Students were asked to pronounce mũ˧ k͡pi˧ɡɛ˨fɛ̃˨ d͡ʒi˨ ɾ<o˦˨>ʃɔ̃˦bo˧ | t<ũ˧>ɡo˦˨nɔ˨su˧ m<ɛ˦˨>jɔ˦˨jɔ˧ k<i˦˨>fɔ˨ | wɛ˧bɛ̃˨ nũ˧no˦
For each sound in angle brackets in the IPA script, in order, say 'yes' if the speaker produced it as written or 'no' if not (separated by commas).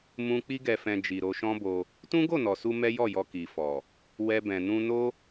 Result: no, no, no, no